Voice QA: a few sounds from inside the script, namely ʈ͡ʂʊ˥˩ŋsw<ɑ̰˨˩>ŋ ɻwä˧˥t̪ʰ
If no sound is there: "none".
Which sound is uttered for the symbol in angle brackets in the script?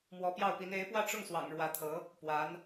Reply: ɑ̰˨˩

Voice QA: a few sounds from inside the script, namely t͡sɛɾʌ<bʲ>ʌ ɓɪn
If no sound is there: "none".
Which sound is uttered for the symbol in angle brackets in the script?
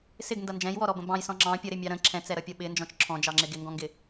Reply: pʲ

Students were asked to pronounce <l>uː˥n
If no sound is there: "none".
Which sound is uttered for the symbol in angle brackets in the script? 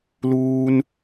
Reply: l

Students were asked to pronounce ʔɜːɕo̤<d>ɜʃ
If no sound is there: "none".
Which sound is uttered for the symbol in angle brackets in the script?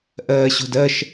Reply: d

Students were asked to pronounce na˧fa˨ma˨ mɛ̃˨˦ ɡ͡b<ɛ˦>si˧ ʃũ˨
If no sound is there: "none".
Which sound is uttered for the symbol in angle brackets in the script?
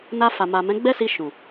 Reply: ɛ˦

